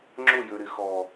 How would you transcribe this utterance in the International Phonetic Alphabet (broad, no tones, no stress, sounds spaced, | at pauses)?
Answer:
ŋ͡ǁ ʊ j ø ɾ ɪ x ɔ